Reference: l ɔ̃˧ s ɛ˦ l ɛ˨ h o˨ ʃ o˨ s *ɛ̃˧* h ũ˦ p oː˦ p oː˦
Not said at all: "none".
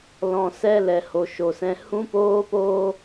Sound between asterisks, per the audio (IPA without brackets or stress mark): ɛ̃˧